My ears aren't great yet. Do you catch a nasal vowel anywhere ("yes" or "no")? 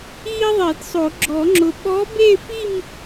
no